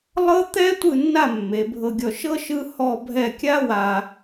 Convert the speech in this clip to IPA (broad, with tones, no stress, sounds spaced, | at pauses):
lˠ ɤ˥ t̪ ɛ˥ tʷ ɯ˥˧ nː a˥˧ mː e˩˧ bʱ ɤ˧ ɡʲ ɔ˧ ʃ ɤ˥ ʃ ɯ˥ h ɔ˥˧ bʱ ɛ˥˧ kʲ a˥ w a˧